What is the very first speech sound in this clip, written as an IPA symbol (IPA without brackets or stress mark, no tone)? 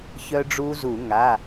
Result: ç